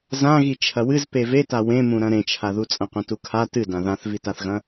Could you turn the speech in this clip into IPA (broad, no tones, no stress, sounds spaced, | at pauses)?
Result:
z ã ɣ i t͡ʃʰ ɐ w ɨ z p e v e t a w ẽ m ũ ɾ ɐ̃ ɾ ẽ t͡ʃʰ a ð u t͡sʼ ɐ̃ qʷ ɐ̃ t u kʰ a t ɨ d ã ð ã θ v i t a θ ɣ ɐ̃